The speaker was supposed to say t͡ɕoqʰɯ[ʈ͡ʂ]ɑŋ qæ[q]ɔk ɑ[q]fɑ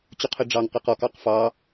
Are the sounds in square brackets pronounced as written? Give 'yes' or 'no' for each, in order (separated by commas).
no, yes, yes